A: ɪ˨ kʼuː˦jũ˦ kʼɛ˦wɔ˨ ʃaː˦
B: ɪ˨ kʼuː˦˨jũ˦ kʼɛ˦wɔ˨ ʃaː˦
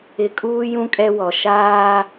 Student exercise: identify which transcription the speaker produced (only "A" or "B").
A